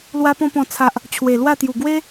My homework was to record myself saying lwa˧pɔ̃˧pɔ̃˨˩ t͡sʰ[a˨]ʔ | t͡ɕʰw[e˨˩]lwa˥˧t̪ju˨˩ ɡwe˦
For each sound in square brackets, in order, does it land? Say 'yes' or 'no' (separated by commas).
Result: yes, yes